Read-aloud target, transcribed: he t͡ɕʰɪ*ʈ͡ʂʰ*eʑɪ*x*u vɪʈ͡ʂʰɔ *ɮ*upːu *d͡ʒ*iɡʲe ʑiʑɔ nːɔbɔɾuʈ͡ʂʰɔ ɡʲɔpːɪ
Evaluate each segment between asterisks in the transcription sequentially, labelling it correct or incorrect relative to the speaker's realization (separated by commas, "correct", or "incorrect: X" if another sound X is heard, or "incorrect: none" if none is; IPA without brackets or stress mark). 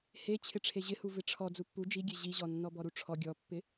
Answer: correct, incorrect: h, incorrect: d͡z, correct